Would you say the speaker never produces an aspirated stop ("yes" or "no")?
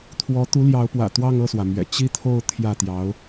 no